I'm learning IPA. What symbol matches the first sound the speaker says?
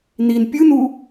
n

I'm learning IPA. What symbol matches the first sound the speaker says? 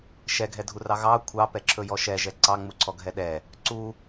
ʃ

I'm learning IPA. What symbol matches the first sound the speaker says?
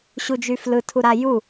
ɕ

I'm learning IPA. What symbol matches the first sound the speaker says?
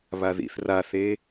β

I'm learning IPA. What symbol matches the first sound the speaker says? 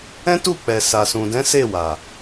ɛ̃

